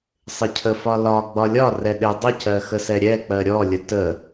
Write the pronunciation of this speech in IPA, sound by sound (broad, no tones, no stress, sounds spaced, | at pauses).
sˤ ɪ cʰ ə f ɒ l ɒ ɡ͡b ɒ lʲ ɒ r ɛ ɗ ɪ dˤ ə c ɜ x ə s ɛ ɾʲ ɛ k͡p ɜ ɾʲ ɔ lʲ ə t ə